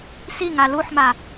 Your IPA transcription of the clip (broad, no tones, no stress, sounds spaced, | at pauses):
s i ŋ a l u ħ m a